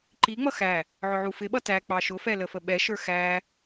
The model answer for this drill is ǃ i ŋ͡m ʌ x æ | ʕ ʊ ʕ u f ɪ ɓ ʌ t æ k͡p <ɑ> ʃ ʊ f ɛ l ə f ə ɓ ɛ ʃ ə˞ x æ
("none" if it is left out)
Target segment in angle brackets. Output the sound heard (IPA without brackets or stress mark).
ɑ